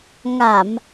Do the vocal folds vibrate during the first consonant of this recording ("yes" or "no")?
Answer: yes